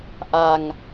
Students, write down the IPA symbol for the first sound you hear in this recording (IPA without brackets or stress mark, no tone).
ʔ